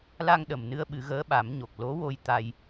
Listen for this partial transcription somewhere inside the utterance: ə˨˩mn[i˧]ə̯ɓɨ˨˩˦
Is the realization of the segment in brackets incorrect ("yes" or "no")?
yes